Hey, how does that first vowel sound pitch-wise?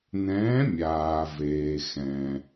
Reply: rising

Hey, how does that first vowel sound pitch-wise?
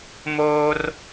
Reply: high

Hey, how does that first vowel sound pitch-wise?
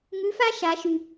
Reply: rising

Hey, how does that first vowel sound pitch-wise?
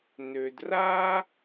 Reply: low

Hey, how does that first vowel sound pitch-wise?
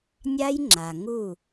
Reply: high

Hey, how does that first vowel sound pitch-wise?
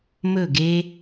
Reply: falling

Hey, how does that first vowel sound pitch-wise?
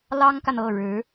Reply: high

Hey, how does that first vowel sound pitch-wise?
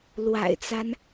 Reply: low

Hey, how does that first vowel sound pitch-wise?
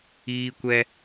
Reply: high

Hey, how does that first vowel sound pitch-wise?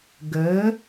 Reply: rising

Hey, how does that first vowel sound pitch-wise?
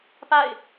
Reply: falling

